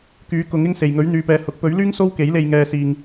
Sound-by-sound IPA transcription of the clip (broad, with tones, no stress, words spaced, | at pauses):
kyː˨˥kʊ˨˥ŋɪ˥ŋse˨j ŋɵ˨˥ɥn̪yː˨˧pɛː˨˧hʊ˨˥k̚ pɵ˨˥ɥlyː˥ŋ so˥wke˨˥jle˧j ŋɛː˧ siː˧ŋ